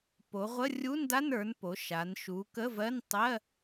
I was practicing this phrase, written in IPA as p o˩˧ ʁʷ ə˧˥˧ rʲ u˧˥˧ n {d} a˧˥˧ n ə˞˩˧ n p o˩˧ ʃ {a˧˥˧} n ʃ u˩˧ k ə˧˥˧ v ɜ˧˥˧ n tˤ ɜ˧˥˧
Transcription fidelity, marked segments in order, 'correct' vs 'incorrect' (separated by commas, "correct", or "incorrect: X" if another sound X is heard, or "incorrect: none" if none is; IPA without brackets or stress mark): correct, incorrect: a˩˧